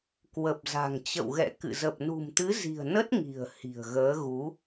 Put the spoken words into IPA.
k w ə˨˩ p̚ z a̤˨˩ ŋ t͡ɕ ə̰˧˨ w ɣ ɛ̰˧˨ k ɨ̰˧˨ z ə˨˩ p̚ n ṳ˨˩ m t̪ ɨ˨˦ z i̤˨˩ ə̯ n ə˦˥ t̚ ŋ i̤˨˩ ə̯ h i̤˨˩ ə̯ ɣ əː˨˦ ɣ u˨˦

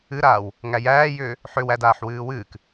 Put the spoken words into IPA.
ɨ ɾ aː w | ŋ æ j æː j ʏː | ħ ʏ w æ d aː ħ w ɨː w ɨː k

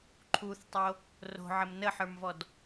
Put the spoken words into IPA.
ǃʰ u θ tˤ o | r o̤ ʕ ə m n ə ħ ə˞ m v ɔ d

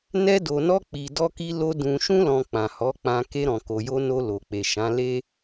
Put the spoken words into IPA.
n ɛ˧ d o˨ n ɔ˧ k͡p i˨ d ɔ˧ k i˧ l o˧ d ũ˨ ʃ ũ˧ l ɔ̃˨ k͡p ã˨ h ɔ˨˦ k͡p ã˧ k e˧ ɾ ɔ̃˨ k o˨ j o˧ n o˧ l o˨ k͡p e˨ ʃ ã˨˦ l e˦

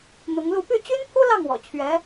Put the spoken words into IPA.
n̪ ʊ˧˥ ŋ l u˥˧ p y˥˩ t͡ɕ y˥ n pʰ u˥ l ɑ˥˩ ŋ w ɔ̰˨˩ t͡ɕʰ ɥ ɛ˧˥

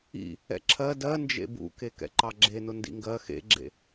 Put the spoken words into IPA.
ḭ | ɛ̰ ǁʰ ɜ d ɜ n d͡ʒ ḛ b ṵ k e k ɛ̰ ǃ ɑ ɡ͡ǁ e n ʊ n d ḭ ŋ ɡ ɜ x ḛ ɡ͡ǁ ḛ

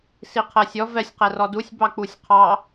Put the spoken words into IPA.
s i qʰ ɜ sʲ ɔ v ɛ sʲ q ɛ r ɔ d u sʲ b ɑ k͡p u sʲ qʰ ɑ

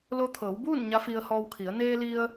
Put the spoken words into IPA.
l o˧ t̪ʰ ɤː˩˧ w b uː˥˨ n ɲ a˧˥ f i˧ ə̯ h ɔː˧ w kʰ i˩˧ ə̯ n eː˧ l i˧ ə̯

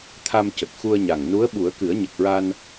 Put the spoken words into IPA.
t̪ʰ a˧ m c ə˨˩ k̚ x u˧ ə̯ ɲ a˨˩ ŋ n u˧˥ ə̯ ɓ u˨˩˦ ə̯ k ɨ˨˩˦ ə̯ ɲ ə˨˩ k̚ ɹ a˧ n

